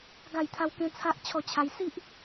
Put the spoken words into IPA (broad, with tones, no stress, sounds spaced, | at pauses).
ɡ a˥˧ j t̪ʰ a˦ w k ẽ˦ t͡sʰ a˦ ʔ t͡ɕʰ ɔ˥˧ t͡ɕʰ a˦ j s i˦ ʔ